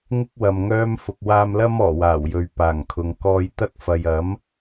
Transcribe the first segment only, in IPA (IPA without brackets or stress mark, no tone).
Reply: ŋ